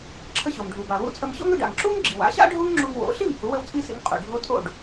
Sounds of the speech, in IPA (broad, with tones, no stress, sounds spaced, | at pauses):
ǁʰ ə˧ ɕ o˩ m ɖʱ u˩ b a˩ w ṵ˧ t͡sʼ ə˧ m ɕ o̰˥ ŋ ʏ˧ ɖ a̰˩ ŋ ǁ u˥ ŋ ɡ͡ǁ ḭ˩ w a̰˩˥ ɕ a̰˥ ɖʱ u˥ ŋ ŋ͡ǁ u˧ ŋ w o̰˩˥ ɬ i˥˩ m h u˩˥ w ə˥ w t͡sʼ i˥ s ḭ˩˥ ŋ qʼ ṵ˩ ɖʱ o˥ tʼ o̰˥˩ ɖ